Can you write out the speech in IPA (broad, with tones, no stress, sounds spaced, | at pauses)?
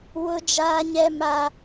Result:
w ʊ˦ d͡ʒ aː˦ ɲ ɛ˦ m a˦